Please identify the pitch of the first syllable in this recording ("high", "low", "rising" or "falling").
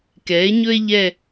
rising